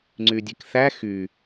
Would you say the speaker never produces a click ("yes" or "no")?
no